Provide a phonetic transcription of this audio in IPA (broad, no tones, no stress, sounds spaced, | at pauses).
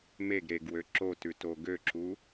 m e ɡ ɾ e ɡ w ø ǁ o t ʉ t o ɡ ø ǁ u